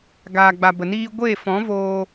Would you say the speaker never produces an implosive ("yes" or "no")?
yes